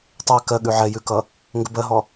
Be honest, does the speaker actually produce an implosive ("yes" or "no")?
yes